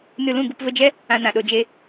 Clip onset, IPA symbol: n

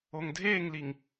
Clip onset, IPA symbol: o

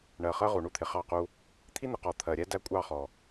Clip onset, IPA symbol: ɳ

